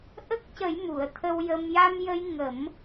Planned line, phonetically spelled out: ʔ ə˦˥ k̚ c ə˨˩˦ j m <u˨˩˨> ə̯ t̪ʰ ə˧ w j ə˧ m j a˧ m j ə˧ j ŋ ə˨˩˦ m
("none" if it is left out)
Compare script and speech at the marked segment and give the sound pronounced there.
u˨˩˨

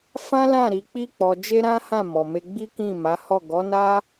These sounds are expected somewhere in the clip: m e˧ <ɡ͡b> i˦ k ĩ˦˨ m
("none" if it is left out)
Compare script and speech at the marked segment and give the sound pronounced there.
ɡ͡b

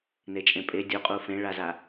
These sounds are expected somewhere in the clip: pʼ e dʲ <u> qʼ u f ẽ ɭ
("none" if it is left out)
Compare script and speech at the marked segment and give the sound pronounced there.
u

